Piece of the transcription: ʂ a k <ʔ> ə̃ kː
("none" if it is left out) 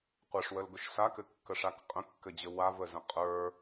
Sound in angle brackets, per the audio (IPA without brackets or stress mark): qʼ